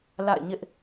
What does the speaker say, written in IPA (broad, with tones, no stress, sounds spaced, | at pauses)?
l a̰˦˨ ɪ̯ ɲ ɪ˦ ʔ